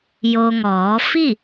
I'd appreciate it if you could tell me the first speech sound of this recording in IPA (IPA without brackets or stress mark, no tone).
j